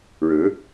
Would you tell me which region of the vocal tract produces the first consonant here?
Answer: retroflex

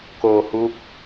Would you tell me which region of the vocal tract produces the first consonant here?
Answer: velum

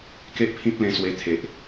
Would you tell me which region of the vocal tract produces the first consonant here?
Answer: velum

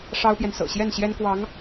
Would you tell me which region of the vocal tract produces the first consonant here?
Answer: retroflex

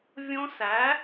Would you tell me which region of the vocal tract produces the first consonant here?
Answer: lips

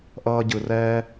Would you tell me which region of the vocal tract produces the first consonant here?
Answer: throat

